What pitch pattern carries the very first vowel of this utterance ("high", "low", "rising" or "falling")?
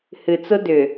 low